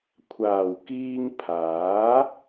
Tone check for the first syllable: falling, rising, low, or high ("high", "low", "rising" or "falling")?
low